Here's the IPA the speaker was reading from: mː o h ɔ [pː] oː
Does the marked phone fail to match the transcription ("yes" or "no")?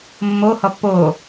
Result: no